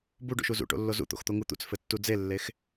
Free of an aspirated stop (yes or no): yes